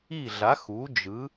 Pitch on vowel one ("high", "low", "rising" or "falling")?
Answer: falling